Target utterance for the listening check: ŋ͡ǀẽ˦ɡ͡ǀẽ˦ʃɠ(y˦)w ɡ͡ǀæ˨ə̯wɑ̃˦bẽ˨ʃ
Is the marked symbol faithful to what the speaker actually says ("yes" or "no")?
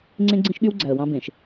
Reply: yes